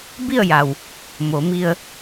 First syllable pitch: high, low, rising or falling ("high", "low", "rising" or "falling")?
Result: falling